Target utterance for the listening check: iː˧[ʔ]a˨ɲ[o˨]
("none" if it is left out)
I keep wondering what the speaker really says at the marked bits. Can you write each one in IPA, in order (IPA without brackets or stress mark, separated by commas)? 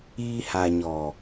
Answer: h, ɔ˨